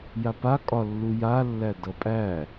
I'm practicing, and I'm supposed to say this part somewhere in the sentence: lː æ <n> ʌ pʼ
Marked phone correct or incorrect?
incorrect